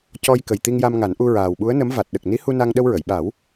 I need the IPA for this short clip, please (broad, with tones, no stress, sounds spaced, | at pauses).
c ɔ˧ j k ə˨˩ j t̪ i˧ ŋ j a˧ m ŋ a˨˩˦ n ʔ u˧ ɹ aː˨˩ w ɓ u˧˥ ə̯ n ə˧˥ m v a˨˩ t̚ ɗ ə˨˩ k̚ n i˧˥ h u˧ n a˧ ŋ ɗ ə˧ w ɹ ə˨˩˨ j ɓ a˨˩˦ w